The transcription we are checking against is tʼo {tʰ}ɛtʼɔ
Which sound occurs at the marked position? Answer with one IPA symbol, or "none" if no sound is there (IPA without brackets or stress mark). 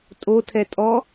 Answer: tʰ